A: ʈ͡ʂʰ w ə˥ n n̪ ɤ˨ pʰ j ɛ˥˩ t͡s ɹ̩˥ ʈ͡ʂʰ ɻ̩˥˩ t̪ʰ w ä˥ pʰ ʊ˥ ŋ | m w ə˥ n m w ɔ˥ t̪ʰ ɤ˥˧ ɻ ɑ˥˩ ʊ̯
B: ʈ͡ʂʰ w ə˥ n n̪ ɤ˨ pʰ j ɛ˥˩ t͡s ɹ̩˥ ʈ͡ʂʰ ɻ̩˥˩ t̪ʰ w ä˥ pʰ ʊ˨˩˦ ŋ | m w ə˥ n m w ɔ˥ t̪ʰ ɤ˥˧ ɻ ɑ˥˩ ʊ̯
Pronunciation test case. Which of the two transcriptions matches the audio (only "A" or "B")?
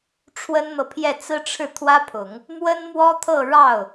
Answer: B